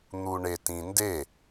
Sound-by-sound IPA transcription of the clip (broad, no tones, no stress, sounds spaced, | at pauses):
n̪ u ɳ e t ĩ n d e